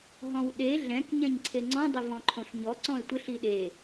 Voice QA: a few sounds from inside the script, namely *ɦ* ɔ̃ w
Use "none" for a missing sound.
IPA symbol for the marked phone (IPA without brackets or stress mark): ɦ